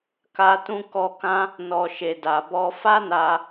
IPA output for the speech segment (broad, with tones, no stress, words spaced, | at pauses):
ka˧ tũ˧kɔ˧kã˦ | nɔ˨ʃe˨da˨bɔ˧ fa˦na˧